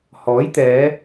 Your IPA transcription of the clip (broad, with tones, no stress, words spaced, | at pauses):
hɔː˨˥jt̪ɛː˨˧